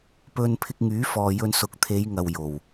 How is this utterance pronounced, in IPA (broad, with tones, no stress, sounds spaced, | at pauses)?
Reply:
p ɵ˧ n pʰ ɪ˧ k̚ ŋ yː˨˥ f ɔː˨ j ɵ˧ n s ʊ˨˥ k̚ t̪ʰ e˨˧ j ŋ ɐ˨ w j o˨˩ w